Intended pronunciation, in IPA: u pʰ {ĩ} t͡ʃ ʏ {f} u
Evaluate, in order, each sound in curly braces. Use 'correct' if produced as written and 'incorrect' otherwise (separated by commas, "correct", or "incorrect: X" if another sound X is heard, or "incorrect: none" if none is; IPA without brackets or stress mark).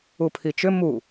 incorrect: i, incorrect: m